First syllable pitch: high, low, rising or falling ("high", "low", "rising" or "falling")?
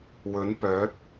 rising